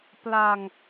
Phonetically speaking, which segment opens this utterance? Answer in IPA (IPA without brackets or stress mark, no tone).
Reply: p